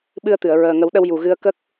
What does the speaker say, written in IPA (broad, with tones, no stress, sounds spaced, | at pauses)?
ɓ ɨ˧ ə̯ t̪ ɨ˨˩˨ ə̯ ɹ əː˨˩ ŋ ə˨˩˦ w ɗ ə˧ w j u˨˩ ɣ ɨ˧ ə̯ k ə˦˥ k̚